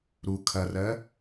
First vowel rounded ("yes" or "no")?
yes